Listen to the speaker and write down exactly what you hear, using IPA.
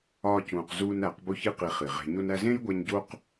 ɒː˧ c ũː˨ q z uː˧ n æ˨˦ q b o˦ ç i˦ q i˧ χ i˨ ʁ e̤˧ ɲ o˧ n æ˧ z ẽː˦ j ɡʷ æ˧ ɲ ɟ o˦ q

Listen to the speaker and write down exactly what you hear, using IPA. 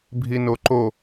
bʱ i n o ǃ o

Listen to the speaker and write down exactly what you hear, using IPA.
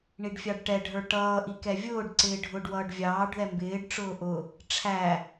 ɳ i ɖ fʲ ɑ ɖ ʈ ɛ ɖʱ ə˞ ʈ ʌː ʔ i k ɛ vʲ ʊː ɖ ǀ ɪː ɖʱ ʊ ɖ w ʌː ɖ vʲ ɑː ɖ ð ɛ m b ɪː ɖ ʈ͡ʂ ʊː ʔ ʊ | ʈ͡ʂʰ æ

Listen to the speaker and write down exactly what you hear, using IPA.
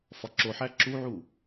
f ɒ ǁ o ħ æ ǁ u ʕ u

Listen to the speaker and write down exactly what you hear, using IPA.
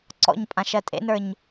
ǀ ɔ̰ ɲ pʼ ã ʃ ɜ tʼ ḛ n ə˞ ɲ

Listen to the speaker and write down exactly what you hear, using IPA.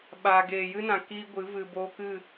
ɓ a˨ ɡ eː˨ j ɨ˦ n ã˨ k iː˦ ɡʷ ɨ˨˦ v ɨ˨ b oː˧ k ɨ˦˨

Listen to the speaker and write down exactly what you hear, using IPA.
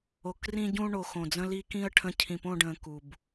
o˨ k r ĩ˦ ɟ ũ˦ ɳ o˨ x õ˨ d͡z ə̃˦ l i˦ k ĩ˦ ə̯ ʈʰ ə̃˦˨ cʰ ĩ˨ p õ˦˨ ɖ ə̃ː˨ k u˨ b

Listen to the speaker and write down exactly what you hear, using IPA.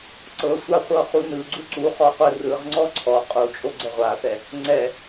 ǀ ɤ sʷ a χʷ ɤ χ u n ɯ ɡ͡ǀ u ǀ u χ ɔ qʷ ɯ r ɯ ʁ ŋ͡ǀ ɔ ǀʰ ɔ qʼ u t͡ʃʼ o ɡ͡ǀ ɛ ʁʷ a θ ɛ | ŋ͡ǀ ɛ

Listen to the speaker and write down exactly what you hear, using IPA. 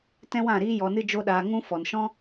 t ɛ̃˦ w ã˦˨ ɾ iː˦ j ɔ˧ n ɨ˦ d͡ʒ o˦ ɗ aː˧ ŋ ũ˦ f ɔ˨ n ʃ ɔ̃˦

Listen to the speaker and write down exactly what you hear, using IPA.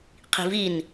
qʰ i̤ v i n

